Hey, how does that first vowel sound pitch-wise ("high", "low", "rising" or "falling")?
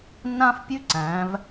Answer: high